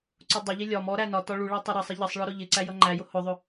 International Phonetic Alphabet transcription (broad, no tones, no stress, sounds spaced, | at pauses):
ǀ ʊ dˤ ʊ ʎ i lʲ ɒ m ɔ ɾ æ n ɒ t ɒ ɭ u ɭ æ tˤ ɪ ɾ ɑ sˤ ɪ ʎ ʌ sˤ ɭ ɒ ɾ ʊ ʎ ɪ ǀ æ j ʌ ŋ͡ǃ æ j ʊ h ʊ ðˤ ʊ